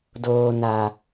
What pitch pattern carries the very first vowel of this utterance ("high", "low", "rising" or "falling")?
low